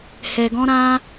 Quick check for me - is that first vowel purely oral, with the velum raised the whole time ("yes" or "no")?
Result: yes